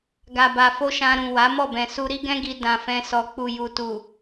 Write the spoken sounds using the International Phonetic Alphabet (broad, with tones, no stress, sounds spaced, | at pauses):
ɡ a˨ b a˨ f o˧ ʃ ã˧ ɾ ũ˨ w a˨˦ m ɔ˦˨ b ɛ̃˨ s u˧ ɾ i˦ ɡ ɛ̃˦ ɡ i˧ d ã˨ f ɛ̃˧ s ɔ˨ k͡p u˨ j u˨ t u˨